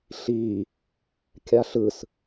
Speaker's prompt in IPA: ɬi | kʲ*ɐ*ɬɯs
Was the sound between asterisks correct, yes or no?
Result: no